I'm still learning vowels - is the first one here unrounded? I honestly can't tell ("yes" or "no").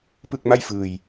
yes